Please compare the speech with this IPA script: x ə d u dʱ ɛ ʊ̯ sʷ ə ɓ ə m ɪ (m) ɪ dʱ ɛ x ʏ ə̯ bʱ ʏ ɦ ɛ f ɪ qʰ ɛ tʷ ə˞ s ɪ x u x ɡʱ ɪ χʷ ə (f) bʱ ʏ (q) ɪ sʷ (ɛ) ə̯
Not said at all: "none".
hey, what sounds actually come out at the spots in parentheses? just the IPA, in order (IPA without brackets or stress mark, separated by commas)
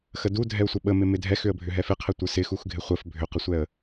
m, f, q, ɛ